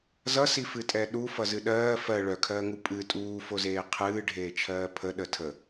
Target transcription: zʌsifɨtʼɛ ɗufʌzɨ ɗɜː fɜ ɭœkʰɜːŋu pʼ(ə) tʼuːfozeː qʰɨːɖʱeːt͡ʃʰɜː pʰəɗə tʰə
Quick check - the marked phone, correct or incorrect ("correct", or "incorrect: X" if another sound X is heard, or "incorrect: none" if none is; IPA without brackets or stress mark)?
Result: incorrect: ɨ